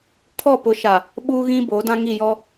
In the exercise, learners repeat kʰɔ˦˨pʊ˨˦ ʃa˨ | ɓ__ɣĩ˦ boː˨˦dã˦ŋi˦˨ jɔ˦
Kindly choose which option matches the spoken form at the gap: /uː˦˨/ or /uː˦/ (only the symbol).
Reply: uː˦